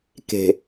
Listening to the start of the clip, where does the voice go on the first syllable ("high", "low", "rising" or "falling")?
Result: low